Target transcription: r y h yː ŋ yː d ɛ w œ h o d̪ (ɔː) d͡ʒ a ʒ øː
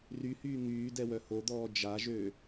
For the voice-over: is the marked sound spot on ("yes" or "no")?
yes